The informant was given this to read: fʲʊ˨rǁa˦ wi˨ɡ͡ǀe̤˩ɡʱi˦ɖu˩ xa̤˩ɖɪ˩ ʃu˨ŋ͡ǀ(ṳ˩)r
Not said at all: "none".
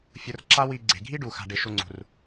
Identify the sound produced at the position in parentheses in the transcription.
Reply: ṳ˩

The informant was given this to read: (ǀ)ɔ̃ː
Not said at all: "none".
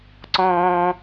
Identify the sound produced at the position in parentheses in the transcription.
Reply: ǀ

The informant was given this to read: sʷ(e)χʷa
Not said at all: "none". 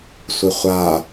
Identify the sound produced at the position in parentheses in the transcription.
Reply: e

